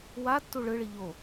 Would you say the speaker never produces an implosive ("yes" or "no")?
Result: yes